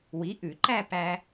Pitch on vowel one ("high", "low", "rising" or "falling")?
rising